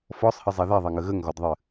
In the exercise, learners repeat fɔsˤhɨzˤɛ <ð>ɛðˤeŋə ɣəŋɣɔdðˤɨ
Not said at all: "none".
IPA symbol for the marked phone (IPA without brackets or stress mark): ð